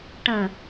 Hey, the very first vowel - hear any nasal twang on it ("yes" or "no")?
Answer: yes